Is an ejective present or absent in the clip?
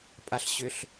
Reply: present